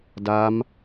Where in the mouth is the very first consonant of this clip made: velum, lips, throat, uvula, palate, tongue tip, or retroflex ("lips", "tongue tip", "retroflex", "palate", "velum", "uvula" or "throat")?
tongue tip